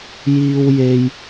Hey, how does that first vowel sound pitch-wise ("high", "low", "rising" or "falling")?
high